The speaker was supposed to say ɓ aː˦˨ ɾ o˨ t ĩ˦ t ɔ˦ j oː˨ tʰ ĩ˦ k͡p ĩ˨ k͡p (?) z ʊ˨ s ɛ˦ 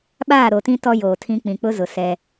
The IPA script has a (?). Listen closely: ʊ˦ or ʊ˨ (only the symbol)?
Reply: ʊ˦